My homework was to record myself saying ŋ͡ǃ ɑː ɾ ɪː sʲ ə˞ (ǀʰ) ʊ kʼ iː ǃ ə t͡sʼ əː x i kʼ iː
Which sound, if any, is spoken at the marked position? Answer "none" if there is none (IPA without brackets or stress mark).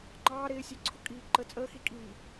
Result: ǀʰ